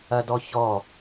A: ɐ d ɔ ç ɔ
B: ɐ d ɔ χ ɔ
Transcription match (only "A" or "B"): A